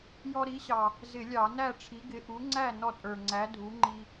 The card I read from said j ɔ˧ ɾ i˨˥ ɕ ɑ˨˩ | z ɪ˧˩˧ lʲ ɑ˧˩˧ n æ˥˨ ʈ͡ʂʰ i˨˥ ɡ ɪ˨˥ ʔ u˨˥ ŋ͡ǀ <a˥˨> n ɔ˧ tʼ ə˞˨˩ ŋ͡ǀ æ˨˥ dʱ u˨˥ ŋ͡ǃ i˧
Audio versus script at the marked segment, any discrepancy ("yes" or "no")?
yes